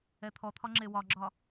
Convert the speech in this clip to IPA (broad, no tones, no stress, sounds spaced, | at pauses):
ɛ t̪ʰ ɔ t̪ʰ ɒ ŋ͡ǁ e w ɒ ɡ͡ǁ ɒ